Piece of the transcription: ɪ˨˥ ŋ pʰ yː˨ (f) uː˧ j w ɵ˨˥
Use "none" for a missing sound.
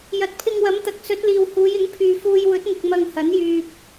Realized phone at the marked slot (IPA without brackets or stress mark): f